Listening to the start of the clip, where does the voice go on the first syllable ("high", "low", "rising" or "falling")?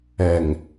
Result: low